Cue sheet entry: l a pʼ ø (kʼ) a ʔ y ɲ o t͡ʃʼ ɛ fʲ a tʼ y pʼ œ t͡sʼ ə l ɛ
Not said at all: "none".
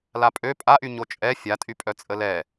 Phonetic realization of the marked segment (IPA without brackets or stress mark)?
pʼ